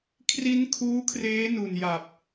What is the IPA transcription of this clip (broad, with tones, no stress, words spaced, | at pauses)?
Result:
kʰri˦˥n kʰuː˦˥kʰreː˦˥ nu˨˩nja˨˩p̚